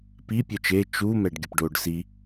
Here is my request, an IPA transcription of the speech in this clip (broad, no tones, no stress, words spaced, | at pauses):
pi pʲœt͡ʃe t͡ʃu mɛɖɡʲəpɖoɖ si